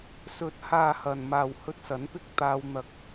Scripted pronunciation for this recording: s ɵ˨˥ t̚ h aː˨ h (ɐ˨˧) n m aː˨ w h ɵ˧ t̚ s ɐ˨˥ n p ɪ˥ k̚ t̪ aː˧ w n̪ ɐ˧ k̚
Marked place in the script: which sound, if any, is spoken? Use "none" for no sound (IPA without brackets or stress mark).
ɐ˨